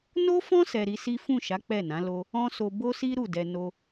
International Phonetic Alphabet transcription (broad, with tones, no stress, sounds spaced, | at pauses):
n o˦ f ɔ̃˦ s ɛ˧ ɾ i˧ s i˦ f ũ˦˨ ʃ a˨˦ k͡p ɛ˦˨ n ã˨˦ l o˦ | ɔ̃˦ s o˧ b o˦ s i˦ ɾ u˦˨ d ɛ˧ n o˧